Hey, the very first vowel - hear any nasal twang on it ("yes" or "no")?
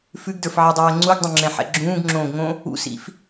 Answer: no